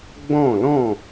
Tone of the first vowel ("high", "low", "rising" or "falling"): falling